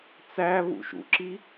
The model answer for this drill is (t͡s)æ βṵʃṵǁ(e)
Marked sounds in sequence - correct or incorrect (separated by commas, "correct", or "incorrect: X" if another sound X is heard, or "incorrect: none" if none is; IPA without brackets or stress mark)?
correct, incorrect: i